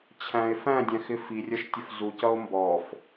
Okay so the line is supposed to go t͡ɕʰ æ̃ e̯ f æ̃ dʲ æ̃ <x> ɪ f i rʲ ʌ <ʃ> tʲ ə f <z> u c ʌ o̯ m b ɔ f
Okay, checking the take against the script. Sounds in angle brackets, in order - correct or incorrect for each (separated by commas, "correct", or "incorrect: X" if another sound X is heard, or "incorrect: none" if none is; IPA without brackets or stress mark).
correct, correct, correct